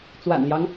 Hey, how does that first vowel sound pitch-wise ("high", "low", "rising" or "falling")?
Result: low